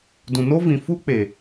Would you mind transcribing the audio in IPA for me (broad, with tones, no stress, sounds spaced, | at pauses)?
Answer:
d ũ˨ n o˦ v ĩ˧ f u˦ k͡p e˨